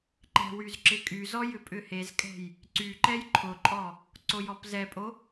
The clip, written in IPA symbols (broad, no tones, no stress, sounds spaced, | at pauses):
ǃ ɛ̤ w y z ǁ ɪ kʼ y z ɔ j ʏ pʼ ʏ h e z kʼ ɛ̤ j | ǀ y ǃ ɛ j ǃʰ ʊ ǃʼ ɔ | ǀ o j ɔ p z ɛ pʼ o